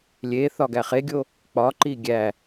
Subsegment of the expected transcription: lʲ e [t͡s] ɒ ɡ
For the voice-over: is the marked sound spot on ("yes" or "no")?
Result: no